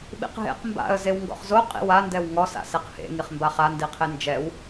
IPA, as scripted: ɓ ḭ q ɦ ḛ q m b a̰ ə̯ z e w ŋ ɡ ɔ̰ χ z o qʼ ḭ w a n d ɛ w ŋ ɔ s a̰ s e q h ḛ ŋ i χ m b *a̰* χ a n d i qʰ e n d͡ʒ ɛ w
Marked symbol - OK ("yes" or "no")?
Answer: no